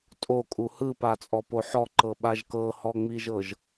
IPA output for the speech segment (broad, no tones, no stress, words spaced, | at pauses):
tʼokʼu hɯpat͡sʼɔpo ħɔǃɤɓaʒ kɤhɔŋ͡miʒɤʒ